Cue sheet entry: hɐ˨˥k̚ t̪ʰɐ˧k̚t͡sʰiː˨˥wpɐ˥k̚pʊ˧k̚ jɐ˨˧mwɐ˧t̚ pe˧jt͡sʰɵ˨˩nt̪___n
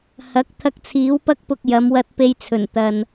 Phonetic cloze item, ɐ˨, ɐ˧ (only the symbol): ɐ˨